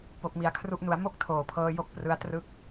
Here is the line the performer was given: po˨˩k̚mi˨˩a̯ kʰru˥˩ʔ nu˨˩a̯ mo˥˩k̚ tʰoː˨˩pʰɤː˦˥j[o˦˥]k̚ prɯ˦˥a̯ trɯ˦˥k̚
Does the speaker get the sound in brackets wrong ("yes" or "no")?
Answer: no